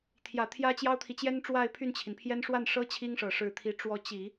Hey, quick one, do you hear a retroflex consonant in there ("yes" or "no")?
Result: yes